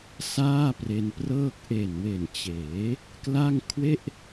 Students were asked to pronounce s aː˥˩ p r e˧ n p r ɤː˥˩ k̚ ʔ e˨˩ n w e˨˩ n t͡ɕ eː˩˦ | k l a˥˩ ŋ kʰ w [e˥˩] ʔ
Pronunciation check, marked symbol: correct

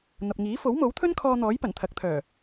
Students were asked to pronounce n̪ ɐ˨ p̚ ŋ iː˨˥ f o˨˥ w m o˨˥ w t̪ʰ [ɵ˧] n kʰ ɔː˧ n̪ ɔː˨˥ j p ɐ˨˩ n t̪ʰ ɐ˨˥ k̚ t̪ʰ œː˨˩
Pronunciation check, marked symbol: incorrect: ɵ˥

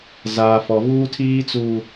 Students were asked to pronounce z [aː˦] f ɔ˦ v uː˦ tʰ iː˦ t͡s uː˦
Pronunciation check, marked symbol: correct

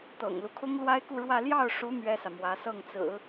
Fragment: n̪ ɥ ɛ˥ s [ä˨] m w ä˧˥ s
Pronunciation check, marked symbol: correct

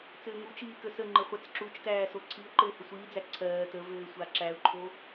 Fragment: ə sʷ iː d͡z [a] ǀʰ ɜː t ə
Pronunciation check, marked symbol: incorrect: æ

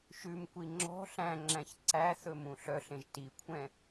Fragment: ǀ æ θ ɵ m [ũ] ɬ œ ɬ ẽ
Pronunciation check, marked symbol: correct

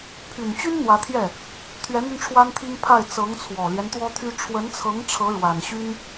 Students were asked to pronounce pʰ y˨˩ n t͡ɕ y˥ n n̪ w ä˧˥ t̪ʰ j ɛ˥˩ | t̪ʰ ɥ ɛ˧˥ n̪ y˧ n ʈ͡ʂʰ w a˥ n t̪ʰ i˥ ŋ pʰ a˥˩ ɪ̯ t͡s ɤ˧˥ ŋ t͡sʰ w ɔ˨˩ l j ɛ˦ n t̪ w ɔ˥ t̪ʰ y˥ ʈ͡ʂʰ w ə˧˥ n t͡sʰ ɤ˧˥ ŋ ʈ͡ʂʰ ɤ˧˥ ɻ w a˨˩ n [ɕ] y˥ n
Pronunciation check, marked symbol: correct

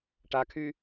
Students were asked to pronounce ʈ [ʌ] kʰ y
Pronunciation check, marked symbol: incorrect: a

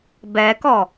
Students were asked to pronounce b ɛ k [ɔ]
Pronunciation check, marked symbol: correct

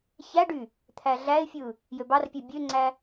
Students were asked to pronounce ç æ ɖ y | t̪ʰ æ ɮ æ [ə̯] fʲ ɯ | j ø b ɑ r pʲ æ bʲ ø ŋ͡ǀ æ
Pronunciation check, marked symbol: incorrect: ɪ̯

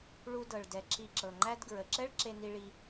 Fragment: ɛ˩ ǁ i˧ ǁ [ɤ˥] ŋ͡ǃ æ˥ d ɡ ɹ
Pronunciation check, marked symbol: incorrect: ɤ˩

